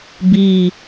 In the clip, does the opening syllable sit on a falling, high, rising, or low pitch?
low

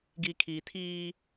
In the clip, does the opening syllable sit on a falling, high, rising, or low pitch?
low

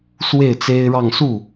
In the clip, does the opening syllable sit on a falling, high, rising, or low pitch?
falling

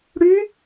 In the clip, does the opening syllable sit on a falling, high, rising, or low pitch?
rising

